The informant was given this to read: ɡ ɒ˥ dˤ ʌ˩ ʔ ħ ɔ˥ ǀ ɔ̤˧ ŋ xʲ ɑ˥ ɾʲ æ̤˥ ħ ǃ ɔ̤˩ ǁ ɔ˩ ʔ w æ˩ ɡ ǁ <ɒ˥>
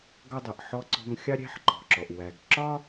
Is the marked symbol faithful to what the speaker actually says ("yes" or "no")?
yes